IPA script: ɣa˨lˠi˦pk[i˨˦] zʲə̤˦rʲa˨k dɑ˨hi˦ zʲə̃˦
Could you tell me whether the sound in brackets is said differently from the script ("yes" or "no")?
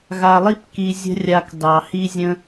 yes